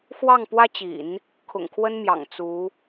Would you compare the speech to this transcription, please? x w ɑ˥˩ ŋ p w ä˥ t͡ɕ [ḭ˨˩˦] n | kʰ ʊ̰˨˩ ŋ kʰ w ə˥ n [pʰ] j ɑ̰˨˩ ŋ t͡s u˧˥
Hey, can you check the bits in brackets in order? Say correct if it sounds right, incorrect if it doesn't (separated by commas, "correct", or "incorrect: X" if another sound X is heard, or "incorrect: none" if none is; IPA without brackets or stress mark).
correct, incorrect: m